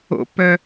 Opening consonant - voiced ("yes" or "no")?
no